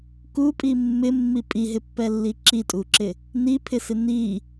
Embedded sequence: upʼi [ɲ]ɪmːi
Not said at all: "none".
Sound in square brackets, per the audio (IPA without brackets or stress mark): mː